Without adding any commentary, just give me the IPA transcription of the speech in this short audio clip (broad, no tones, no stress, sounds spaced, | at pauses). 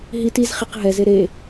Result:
ɦ i t i z χ i q ɦ ɛ z e ɾ e